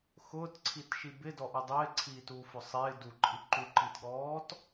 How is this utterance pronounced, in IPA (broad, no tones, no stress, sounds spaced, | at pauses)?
x ʊː t ǀʰ i t ʃ i b ɪ d ɔ ʔ ʊ dˤ ɪː ǀʰ iː t uː f ʊ sˤ ɪː d u ǃʼ i ǃ u ǃ i t ɠ ɔː t